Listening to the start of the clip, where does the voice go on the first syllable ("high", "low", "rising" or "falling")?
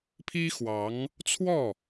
high